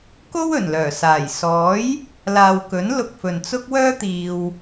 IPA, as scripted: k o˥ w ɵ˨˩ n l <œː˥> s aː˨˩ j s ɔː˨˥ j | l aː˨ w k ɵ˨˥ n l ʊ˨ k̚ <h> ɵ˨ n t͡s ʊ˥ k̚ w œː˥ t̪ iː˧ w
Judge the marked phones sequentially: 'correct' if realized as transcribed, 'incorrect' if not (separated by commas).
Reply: incorrect, incorrect